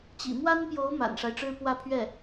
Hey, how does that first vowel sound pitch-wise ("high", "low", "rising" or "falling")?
low